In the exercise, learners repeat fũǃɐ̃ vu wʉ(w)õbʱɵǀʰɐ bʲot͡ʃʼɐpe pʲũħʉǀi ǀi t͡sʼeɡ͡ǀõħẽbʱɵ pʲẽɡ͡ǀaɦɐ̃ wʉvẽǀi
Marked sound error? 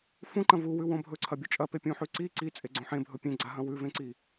no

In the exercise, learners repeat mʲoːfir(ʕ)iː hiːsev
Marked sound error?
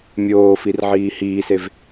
no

